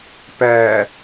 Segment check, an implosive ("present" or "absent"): absent